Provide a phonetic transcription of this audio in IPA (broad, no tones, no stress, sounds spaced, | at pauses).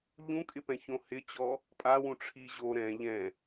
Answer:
ʎ ũ kʼ ɪ p ɛ̃ ç õ h ɪ t͡ɕ ɔ | pʼ a w ũ ʈ͡ʂʰ i ʑ o ɾ ɛ̃ ʎ ɛ̃